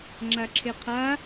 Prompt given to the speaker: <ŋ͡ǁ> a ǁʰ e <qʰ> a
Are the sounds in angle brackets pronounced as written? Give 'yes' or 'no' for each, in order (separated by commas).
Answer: yes, yes